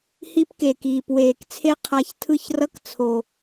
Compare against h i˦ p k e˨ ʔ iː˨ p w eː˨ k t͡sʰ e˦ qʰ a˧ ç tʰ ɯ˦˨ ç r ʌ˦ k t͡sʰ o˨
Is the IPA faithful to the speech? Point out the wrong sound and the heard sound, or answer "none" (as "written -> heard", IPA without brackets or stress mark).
ʔ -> k